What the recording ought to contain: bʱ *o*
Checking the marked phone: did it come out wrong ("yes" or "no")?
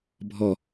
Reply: yes